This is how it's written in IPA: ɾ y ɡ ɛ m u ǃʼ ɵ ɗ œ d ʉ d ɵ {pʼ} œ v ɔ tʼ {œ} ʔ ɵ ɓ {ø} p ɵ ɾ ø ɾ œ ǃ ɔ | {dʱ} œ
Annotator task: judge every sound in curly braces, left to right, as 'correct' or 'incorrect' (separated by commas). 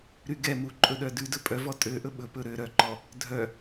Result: correct, incorrect, incorrect, correct